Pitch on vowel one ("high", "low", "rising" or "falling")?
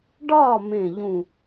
falling